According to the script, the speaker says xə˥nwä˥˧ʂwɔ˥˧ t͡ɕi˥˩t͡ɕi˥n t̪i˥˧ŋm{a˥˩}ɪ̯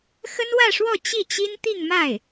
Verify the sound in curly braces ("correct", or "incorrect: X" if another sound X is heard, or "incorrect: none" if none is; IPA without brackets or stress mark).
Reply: correct